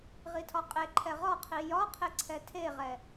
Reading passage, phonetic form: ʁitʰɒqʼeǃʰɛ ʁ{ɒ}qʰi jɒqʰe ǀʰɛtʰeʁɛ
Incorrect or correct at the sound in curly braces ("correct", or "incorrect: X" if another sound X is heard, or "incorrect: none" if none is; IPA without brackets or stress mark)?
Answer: correct